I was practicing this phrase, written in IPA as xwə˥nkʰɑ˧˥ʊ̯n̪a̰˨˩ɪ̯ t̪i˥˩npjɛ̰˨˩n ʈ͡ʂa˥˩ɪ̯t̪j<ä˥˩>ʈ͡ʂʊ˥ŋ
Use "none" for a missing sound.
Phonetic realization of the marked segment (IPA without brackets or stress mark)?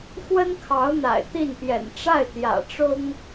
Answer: ä̰˨˩